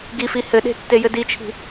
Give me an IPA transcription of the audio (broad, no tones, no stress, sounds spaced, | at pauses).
ɡ i f i h ɘ ɗ e̤ tː e j ɘ d i t͡ʃʰ i̤